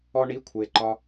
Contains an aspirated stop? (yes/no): yes